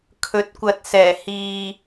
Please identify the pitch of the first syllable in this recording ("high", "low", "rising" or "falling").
rising